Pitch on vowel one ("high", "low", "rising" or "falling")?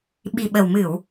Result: low